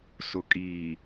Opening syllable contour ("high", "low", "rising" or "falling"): low